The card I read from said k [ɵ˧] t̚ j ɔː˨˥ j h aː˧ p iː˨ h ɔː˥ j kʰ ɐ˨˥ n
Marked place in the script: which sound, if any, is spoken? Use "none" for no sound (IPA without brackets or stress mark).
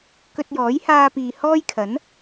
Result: ɵ˧